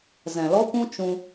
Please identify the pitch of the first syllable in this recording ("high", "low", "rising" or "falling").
low